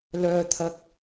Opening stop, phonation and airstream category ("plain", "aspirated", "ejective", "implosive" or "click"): aspirated